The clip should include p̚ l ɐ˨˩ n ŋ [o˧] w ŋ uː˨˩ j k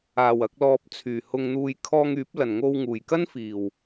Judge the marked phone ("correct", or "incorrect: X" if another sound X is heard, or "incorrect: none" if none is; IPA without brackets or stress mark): correct